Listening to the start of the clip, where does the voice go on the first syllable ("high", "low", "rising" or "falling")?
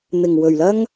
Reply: low